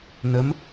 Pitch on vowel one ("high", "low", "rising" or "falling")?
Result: rising